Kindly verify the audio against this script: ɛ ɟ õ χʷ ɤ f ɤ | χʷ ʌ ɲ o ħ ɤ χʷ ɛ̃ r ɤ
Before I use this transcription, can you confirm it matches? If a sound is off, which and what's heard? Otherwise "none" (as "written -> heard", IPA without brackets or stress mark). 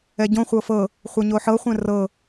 none